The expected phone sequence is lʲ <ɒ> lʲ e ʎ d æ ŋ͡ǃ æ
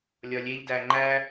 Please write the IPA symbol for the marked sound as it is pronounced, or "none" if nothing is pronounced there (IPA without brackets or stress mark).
ɒ